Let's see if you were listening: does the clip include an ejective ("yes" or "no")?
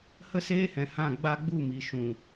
no